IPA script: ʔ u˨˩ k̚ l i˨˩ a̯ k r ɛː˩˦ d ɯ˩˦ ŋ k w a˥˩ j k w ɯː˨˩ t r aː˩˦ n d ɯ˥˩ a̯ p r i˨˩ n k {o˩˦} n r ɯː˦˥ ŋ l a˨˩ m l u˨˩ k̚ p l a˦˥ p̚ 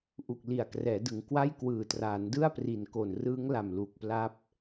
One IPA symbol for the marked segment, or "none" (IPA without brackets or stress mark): o˨˩